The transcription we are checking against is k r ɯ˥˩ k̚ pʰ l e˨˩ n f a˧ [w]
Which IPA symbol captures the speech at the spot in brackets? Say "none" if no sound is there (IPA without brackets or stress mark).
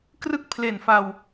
w